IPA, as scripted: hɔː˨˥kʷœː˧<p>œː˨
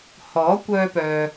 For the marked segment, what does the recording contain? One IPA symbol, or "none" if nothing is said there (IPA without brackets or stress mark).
p